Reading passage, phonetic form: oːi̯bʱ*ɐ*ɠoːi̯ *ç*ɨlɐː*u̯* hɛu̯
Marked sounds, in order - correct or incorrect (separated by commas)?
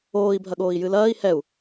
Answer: correct, incorrect, incorrect